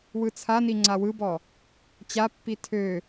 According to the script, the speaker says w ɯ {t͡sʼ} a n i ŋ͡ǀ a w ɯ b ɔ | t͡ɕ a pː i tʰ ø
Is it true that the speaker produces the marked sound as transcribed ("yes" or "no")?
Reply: no